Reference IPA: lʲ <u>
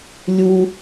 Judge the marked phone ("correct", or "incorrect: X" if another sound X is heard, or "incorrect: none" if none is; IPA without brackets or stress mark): correct